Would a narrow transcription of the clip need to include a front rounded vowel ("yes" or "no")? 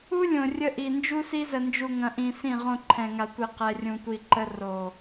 no